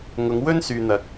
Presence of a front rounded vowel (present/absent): present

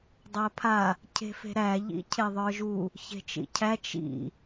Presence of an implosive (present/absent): absent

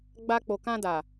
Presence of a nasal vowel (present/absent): present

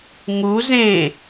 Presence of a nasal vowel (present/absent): present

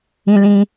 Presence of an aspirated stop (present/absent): absent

